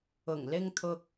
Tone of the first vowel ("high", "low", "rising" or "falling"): low